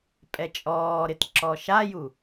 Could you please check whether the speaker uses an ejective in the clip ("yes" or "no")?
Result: yes